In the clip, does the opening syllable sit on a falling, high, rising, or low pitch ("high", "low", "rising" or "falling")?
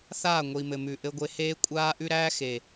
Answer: falling